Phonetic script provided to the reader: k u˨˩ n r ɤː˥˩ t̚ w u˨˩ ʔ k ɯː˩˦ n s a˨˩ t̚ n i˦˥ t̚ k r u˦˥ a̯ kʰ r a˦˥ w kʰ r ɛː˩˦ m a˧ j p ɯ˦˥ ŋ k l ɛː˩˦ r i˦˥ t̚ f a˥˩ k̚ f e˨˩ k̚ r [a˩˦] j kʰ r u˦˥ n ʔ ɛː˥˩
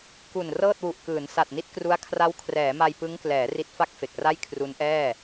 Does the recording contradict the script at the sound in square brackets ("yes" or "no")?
yes